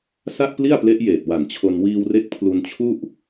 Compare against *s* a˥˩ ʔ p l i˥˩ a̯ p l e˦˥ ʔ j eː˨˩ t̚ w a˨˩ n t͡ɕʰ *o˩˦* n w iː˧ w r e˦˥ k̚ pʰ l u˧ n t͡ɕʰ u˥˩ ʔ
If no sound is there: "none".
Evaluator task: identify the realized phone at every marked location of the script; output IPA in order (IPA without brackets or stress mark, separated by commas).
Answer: s, o˧